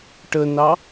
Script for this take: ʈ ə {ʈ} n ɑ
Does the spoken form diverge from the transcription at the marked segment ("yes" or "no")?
yes